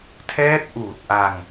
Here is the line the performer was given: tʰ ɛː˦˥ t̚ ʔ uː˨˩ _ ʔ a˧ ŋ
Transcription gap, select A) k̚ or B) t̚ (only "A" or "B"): B